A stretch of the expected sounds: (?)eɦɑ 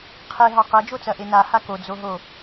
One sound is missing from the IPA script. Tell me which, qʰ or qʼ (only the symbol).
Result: qʰ